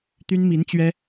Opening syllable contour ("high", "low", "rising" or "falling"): high